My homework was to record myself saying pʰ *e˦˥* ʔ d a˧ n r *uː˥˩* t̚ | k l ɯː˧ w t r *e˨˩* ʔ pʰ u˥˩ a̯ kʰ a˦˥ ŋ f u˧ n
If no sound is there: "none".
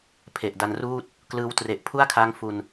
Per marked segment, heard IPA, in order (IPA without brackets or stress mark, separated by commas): e˨˩, uː˥˩, e˨˩